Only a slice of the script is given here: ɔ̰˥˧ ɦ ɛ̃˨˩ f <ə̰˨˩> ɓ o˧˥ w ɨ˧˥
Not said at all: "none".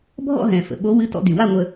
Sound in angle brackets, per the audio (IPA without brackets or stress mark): ə̰˨˩